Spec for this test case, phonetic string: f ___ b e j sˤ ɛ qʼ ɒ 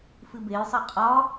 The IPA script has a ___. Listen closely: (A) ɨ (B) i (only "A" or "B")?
A